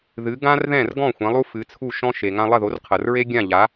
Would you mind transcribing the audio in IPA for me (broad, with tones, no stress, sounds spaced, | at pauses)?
ð ɨ˩˥ ɡ ã˥ r ð ɛ̃˥˩ r ɡ ɔ̃˥˩ xʷ ɛ̃˩˥ lˠ u˥ f ɨ˩˥ t͡sʰ u˥˩ ʃ ɔ̃˥ ʃ e˩ ŋ ã˧ lˠ ɐ˥˩ ð o˩˥ r qʰ ɐ˩ r ɹ e˥ ɡʲ ã˥˩ ʎ a˩˥